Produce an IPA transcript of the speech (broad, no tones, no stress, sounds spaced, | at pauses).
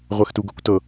ʁʷ ɛ x t u ɡ ɤ kʷ t ɤ